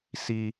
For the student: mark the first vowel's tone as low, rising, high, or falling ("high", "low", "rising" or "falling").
high